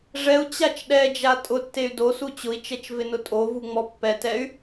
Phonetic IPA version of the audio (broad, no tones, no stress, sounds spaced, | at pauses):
ʐ ɛ u̯ t͡ɕ a t͡ʃ ɗ ɛ d͡ʒ a tʼ ʊ tː e y̯ d o s u t͡ɕ ʊ i̯ t͡ʃ ɛ t͡ʃ v ɪ n ʊ tʼ o v u ŋ͡m ɔ pː ɛ t ɛ y̯